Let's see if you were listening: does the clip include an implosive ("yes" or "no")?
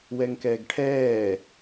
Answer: no